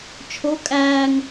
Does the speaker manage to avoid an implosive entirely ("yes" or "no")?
yes